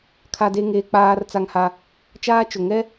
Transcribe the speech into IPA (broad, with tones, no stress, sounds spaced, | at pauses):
kʰ a˦ d e˦ ŋ eː˦ k͡p aː˦ r t͡s a˦ ŋ h a˦ | t͡ʃ aː˦ t͡ʃ ʊ˨ ŋ ɛ˦